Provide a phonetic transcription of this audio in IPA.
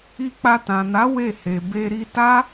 i˧ k͡p a˧ t ã˨ n a˨˦ w e˦˨ h e˨ b e˧ ɾ i˧ t a˦

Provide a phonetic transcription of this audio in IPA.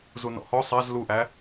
z u n ɔ̰ h ɔ sˤ æ z l u ʔ æ

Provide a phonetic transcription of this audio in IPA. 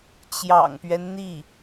t͡ɕ j ɑ̰˨˩ ŋ p ɥ ɛ˦ n n̪ i˥˩

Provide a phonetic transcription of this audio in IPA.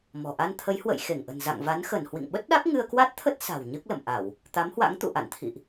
m ɔ̤˨˩ ʔ a˧ n t̪ʰ ə˨˦ j h w ə̰˧˨ j x e˧˩ ŋ ʔ ə̤˨˩ n z a̰˧˨ ŋ v a˨˦ n x ə˧˩ n h w ḭ˧˨ ŋ ɓ ə˦˥ t̚ ɗ a˦˥ k̚ ŋ ɨ˧ ə̯ k w a˦˥ t̚ t̪ʰ ə˦˥ t̚ s a̤˨˩ w ɲ ɨ˦˥ k̚ l ə̰˧˨ m ʔ a˧˩˨ w | t̪ a˨˦ m h w a̰˧˥ ŋ t̪ ṵ˧˨ ʔ a̰˧˨ n t̪ʰ ḭ˧˨ ʔ

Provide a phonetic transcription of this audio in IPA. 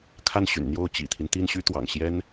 kʰ a˥˩ n ɕ y̰˨˩ n n̪ j o˥˩ ʊ̯ t͡ɕ ḭ˨˩ t̪ʰ i˦ n t̪ i˥˩ n ɕ y˥ t̪ w ɑ̰˨˩ ŋ ɕ j ɛ˥ n

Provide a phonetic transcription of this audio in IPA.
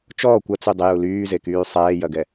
t͡ʃ ɔː kʷ ɐ t͡s y dˤ ɪ j u l yː z e k yː sˤ ɛː j ɐ ɡ ɛ

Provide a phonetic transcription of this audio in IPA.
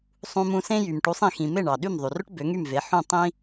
sˤ ũ˧ m ũ˧ s ẽ˥ j y˩ m ʈ u˩˥ sˤ ĩ˩ x ĩ˩ m e˥˩ ɳ ɑ˩ ɗ y˥˩ m ðˤ y˩ r ɵ˥ ʈ b ø˩˥ ŋ y˥˩ m v e˩˥ ħ ũ˥˩ tˤ ĩ˥

